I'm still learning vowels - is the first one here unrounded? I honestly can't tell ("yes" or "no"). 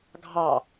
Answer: yes